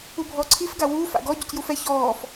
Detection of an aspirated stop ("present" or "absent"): present